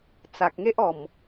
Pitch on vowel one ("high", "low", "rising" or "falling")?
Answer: low